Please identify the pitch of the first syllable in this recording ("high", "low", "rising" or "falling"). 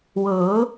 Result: rising